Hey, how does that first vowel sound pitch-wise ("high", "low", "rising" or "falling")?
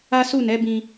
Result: high